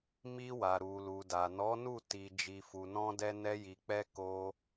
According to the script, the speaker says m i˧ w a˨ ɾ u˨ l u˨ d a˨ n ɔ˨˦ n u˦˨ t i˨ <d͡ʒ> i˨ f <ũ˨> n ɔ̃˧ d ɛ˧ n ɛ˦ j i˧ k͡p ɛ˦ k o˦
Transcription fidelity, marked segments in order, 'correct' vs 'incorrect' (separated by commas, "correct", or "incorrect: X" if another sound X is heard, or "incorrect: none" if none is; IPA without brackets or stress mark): correct, incorrect: u˨